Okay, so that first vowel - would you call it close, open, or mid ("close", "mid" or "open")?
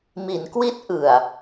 close